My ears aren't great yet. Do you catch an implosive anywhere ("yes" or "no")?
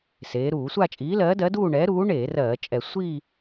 no